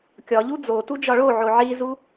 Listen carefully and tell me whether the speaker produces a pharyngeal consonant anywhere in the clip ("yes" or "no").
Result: yes